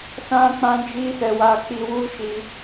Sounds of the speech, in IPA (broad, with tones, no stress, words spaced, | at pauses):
sã˦k͡pã˦d͡ʒi˦sɛ˧ wa˧k͡pi˧wu˦ʃi˧